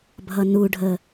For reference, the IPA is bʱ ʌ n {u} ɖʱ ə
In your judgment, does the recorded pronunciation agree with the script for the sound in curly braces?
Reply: yes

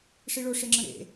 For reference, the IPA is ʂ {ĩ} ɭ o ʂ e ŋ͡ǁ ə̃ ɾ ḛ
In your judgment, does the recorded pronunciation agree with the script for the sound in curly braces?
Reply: no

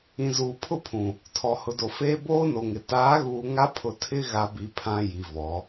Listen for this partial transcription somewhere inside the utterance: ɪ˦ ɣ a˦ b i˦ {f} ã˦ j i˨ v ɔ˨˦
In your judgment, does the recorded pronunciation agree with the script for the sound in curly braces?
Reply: no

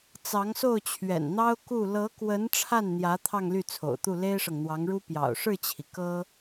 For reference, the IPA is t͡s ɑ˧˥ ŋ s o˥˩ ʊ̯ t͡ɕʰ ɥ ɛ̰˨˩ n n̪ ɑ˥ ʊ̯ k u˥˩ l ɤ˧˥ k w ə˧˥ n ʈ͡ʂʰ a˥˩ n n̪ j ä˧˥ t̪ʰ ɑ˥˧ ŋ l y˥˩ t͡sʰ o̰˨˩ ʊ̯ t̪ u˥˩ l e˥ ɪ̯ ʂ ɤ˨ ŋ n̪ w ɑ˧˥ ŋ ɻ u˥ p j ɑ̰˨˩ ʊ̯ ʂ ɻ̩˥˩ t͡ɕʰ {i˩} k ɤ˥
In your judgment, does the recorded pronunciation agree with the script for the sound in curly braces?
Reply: yes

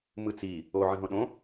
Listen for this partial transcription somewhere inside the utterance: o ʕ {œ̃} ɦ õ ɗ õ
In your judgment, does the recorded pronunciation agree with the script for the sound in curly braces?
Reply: no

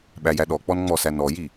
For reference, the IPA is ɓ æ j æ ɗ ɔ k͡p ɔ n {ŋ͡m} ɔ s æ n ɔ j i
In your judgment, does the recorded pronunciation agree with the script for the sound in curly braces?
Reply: yes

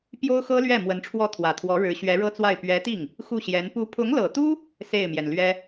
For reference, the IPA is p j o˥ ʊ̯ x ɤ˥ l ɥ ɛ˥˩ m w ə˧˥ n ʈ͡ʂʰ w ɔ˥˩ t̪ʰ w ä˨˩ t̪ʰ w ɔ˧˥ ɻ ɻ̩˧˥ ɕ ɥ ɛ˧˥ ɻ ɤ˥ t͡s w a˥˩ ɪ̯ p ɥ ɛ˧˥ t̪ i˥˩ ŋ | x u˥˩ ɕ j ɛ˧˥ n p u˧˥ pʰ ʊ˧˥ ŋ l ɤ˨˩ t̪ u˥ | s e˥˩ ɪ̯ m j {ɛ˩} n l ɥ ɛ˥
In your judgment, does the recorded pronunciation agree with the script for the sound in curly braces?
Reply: yes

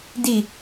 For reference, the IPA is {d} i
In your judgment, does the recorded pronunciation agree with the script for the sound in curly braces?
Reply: yes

